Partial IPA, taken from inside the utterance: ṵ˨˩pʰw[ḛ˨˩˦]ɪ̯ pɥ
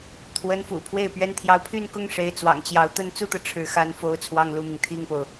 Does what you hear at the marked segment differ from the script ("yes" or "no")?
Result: yes